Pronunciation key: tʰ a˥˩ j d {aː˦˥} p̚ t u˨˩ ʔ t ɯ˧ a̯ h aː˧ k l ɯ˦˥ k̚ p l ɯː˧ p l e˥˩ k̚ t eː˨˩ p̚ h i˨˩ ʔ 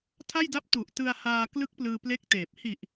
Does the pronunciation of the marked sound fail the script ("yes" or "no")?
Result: yes